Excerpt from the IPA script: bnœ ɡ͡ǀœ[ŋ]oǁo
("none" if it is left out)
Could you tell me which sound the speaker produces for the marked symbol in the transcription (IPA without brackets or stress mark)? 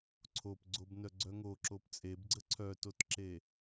ŋ